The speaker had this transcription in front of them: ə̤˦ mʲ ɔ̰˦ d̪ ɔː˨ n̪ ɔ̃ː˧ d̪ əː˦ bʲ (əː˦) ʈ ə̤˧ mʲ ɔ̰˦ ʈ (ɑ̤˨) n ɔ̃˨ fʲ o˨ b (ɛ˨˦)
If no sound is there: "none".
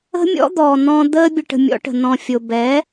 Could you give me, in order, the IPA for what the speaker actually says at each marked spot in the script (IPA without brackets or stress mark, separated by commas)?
ə˦, ə̤˨, ɛ˨˦